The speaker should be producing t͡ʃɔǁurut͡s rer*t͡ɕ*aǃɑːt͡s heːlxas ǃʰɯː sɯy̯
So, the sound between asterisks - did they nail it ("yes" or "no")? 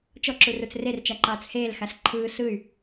no